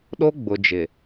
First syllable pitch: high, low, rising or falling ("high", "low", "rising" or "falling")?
high